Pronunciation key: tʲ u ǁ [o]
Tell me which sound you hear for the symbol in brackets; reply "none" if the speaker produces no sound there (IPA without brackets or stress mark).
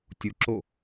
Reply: o